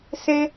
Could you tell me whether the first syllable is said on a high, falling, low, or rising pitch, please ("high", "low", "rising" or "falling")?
high